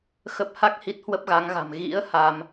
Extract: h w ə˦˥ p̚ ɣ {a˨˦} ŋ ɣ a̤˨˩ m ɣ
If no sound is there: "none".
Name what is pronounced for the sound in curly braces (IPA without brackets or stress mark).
a˨˦